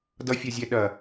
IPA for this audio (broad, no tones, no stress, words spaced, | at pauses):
dʌfʲɐzʲɛ ɗɐ